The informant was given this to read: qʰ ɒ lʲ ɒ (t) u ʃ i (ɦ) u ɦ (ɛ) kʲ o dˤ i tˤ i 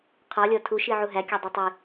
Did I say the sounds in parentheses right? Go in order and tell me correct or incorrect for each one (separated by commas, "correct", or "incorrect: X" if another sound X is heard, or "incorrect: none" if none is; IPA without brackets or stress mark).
incorrect: tʰ, incorrect: ʕ, incorrect: æ